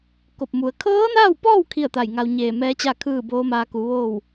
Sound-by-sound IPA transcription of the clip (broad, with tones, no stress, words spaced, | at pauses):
ko˧˩p̚mu˩˧ə̯ kʰɤː˧˥naː˥˨wpɔː˥˨w kʰi˥˨ə̯t̪a˧˩jŋa˧w ɲeː˧˩mɛː˧˥t͡ɕa˥˨ kʰɯː˥˨boː˧˥maː˧ ku˩˧ ʋoː˥˨w